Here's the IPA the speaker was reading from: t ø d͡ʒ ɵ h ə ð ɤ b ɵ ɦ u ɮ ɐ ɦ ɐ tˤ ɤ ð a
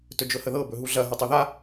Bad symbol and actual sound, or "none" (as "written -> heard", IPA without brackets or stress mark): ø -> ɵ